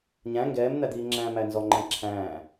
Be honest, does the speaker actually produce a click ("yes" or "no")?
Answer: yes